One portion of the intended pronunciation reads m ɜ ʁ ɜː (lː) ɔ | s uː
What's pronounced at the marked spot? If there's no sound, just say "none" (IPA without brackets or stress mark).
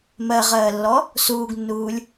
lː